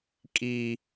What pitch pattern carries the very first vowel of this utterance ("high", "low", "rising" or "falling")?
high